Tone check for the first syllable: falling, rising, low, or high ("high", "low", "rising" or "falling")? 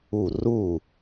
falling